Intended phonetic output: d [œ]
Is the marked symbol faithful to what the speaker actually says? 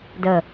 no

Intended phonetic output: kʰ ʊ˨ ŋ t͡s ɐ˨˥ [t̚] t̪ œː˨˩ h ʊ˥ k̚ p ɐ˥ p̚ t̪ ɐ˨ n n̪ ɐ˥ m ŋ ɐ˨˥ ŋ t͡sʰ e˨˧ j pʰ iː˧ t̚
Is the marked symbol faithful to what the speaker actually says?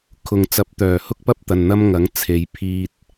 no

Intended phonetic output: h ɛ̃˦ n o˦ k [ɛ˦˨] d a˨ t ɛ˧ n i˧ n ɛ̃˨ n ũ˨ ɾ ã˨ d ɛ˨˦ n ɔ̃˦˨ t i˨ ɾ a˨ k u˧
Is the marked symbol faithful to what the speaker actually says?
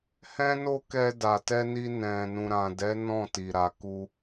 no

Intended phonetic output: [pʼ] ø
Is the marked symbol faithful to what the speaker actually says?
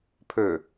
no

